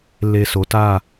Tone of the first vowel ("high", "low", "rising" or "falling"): low